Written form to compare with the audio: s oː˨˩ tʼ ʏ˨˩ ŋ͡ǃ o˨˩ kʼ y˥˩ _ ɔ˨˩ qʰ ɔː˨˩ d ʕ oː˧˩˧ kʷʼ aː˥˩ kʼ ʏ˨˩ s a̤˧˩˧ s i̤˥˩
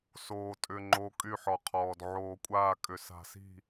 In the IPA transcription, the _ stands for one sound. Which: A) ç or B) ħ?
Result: B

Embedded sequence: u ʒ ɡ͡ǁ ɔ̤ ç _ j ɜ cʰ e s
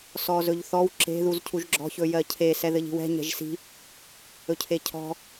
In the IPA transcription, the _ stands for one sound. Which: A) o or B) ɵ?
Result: B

